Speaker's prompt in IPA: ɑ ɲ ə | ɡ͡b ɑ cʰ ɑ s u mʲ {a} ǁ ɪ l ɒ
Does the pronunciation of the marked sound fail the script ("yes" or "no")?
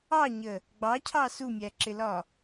yes